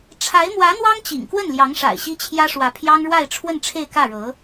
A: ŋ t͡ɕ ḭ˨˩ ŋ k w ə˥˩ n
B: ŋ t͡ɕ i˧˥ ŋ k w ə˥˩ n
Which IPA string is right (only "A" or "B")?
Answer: A